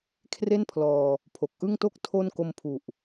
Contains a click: no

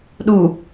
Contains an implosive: yes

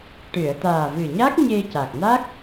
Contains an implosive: no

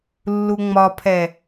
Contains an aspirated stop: yes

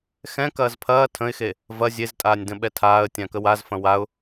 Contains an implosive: yes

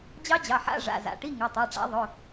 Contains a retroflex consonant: yes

